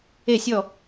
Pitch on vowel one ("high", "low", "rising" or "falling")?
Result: falling